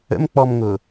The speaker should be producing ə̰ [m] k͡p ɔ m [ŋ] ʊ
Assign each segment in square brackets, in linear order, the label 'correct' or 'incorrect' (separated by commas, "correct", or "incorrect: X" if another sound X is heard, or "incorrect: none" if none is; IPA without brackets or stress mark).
correct, correct